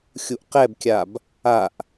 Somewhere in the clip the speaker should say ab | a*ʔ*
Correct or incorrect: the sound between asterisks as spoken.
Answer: correct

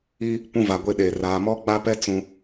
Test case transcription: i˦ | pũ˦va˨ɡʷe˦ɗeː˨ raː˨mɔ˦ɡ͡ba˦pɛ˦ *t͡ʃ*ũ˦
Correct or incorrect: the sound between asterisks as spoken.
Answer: incorrect: t͡s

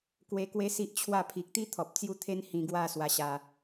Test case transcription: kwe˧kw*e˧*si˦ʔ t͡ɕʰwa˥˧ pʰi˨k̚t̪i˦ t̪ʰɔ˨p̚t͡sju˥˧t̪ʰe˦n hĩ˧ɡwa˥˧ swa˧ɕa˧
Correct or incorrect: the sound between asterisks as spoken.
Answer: incorrect: e˦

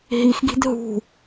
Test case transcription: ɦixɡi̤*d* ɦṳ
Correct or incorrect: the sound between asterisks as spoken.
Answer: correct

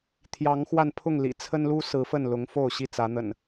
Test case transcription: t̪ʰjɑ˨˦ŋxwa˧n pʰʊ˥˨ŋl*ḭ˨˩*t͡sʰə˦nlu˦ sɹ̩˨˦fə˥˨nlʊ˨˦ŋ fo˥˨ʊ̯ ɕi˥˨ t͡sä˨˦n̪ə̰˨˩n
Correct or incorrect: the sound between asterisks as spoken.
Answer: correct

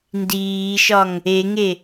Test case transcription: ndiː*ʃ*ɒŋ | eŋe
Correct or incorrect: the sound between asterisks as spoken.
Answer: correct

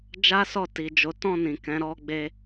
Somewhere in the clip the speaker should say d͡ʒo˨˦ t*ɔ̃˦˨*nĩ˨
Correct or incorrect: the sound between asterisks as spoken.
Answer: correct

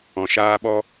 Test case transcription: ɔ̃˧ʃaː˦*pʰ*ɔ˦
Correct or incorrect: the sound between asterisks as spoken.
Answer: incorrect: ɓ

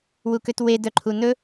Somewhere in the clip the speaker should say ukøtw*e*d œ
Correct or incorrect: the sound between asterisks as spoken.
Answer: correct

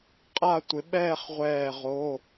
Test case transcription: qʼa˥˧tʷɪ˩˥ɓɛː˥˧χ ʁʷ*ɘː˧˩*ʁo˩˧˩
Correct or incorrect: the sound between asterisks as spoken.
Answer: incorrect: ɛː˧˩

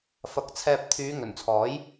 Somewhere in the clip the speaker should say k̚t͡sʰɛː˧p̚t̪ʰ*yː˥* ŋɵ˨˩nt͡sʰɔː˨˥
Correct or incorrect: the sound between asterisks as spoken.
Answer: incorrect: yː˨˧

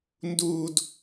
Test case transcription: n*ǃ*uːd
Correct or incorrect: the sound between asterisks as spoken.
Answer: incorrect: d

